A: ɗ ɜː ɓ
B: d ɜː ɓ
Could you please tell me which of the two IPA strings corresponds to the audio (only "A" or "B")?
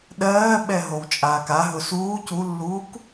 A